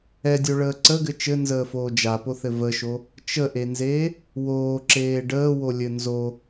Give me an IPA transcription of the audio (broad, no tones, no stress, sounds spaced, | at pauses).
ɛ dʲ o ɭ əː ǀ ə ɡ ɘ t͡ʃ ɘ n z əː f oː d͡ʒ a p o θ ɘ v ə ʃ o | t͡ʃ ə ʔ e n z eː | w oː ǁ eː ɖ əː w o lʲ ɘ n z o